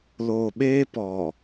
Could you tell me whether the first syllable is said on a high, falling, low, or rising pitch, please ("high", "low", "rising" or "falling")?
low